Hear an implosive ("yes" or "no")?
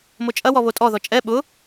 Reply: yes